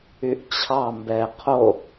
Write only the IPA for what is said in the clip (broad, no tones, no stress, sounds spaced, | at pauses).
y ʔ t͡ɕʰ ɑ m b ɛː qʰ o